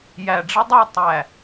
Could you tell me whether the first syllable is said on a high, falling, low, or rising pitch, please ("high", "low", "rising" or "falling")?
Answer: low